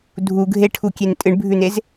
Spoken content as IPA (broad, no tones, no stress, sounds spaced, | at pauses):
dʱ u ɡʱ e ʈʰ u kʲ e n tʼ ɨ ɳ bʱ ʉ n e z